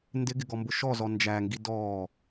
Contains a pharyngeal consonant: no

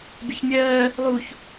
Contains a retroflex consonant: no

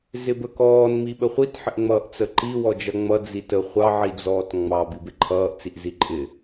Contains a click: yes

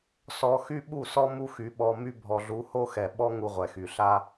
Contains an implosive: yes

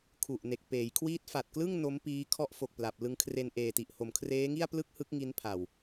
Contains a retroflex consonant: no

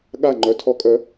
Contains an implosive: yes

